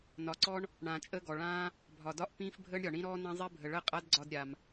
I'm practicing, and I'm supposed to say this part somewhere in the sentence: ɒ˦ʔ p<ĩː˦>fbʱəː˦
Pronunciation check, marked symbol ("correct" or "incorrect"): correct